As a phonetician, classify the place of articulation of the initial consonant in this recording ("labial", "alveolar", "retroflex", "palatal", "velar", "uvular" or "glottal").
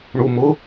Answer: retroflex